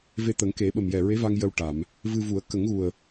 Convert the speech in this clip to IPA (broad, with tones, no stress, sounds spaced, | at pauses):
v e˧ t̪ ə˨˩˦ ŋ k e˨˩˦ ɓ ə˨˩ m j ɛ˨˩ ɹ e˧˥ v a˧ ŋ j ə˧ w ʈ a˨˩˨ m | v ɨ˧ v u˨˩˦ ə̯ k ə˨˩˦ ŋ ɣ u˨˩ ə̯